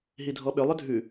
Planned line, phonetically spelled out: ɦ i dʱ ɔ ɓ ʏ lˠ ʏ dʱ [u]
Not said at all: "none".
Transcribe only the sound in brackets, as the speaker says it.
ʉ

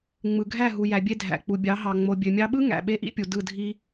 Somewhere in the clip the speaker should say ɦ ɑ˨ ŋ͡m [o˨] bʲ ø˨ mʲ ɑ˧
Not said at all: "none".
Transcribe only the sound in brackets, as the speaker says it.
o˨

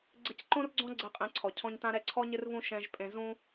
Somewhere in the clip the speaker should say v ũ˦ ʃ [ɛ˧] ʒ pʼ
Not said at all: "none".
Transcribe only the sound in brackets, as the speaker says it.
ɛ̃˧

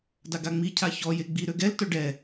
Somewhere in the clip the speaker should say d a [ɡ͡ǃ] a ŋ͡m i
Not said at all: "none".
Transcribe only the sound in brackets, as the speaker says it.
ɡ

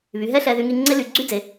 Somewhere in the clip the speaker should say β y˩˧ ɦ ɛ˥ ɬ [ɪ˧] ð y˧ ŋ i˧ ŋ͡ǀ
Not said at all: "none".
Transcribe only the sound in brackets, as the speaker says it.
ɛ˧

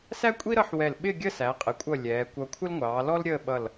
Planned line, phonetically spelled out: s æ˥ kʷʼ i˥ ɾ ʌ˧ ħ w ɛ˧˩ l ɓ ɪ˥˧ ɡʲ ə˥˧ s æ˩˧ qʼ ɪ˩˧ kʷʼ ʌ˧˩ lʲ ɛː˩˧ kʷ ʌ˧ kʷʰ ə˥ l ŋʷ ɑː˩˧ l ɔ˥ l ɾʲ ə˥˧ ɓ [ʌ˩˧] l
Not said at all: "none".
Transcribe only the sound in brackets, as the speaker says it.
ʌ˧˩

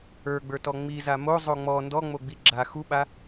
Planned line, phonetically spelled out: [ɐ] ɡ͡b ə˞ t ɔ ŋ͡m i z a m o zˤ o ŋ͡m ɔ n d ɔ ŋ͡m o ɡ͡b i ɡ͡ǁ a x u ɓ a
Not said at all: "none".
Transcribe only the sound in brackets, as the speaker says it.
ə˞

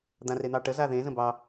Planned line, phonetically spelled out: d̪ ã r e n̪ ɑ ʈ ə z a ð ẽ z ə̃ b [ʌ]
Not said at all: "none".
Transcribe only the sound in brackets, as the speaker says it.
ɑ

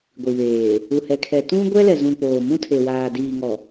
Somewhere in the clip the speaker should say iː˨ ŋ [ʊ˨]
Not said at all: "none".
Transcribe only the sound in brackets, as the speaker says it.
ɔ˨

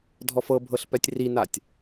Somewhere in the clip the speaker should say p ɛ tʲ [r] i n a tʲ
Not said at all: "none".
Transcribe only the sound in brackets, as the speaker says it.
r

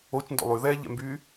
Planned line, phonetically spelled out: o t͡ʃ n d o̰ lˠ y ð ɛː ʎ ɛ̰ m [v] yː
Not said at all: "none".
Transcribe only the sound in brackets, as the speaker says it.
b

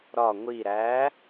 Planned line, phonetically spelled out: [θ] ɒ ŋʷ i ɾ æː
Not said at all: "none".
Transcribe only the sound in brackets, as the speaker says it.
ɾ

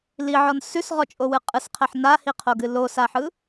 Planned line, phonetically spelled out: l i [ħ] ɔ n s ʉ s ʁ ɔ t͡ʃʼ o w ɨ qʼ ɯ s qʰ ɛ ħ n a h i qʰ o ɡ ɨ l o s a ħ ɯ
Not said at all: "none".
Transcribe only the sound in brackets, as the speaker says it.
ʕ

